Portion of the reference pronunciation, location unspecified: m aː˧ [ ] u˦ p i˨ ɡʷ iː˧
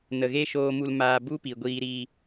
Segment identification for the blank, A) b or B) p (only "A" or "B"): A